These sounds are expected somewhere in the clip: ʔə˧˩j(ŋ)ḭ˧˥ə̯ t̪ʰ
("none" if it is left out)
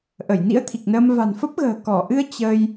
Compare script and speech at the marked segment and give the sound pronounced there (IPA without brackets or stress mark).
n